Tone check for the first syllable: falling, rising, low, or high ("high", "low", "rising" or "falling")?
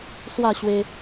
falling